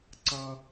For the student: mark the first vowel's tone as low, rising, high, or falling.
high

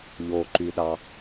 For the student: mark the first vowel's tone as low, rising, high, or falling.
low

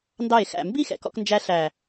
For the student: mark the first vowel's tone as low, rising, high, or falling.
falling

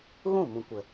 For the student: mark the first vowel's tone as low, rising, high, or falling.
falling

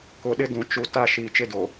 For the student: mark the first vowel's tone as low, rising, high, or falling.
low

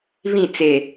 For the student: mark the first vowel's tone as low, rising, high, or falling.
falling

